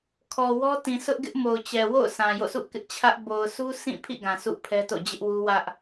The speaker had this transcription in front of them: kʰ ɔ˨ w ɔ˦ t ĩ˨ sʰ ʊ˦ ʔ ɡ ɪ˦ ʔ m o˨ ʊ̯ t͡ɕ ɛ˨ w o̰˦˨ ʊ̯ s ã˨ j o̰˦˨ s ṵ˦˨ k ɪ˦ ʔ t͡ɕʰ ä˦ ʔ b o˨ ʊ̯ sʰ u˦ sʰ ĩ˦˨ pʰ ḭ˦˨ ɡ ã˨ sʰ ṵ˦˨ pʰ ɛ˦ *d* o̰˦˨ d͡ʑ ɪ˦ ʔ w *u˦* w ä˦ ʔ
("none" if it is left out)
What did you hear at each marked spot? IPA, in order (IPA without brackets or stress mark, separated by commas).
t, u˦